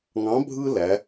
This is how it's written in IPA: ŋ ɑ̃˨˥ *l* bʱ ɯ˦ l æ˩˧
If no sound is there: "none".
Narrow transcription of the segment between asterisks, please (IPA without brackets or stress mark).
none